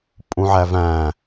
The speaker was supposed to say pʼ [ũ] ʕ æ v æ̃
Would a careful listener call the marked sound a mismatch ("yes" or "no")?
no